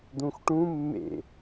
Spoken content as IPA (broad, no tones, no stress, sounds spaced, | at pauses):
d̪ ũ x ʈ ũ mː ḛ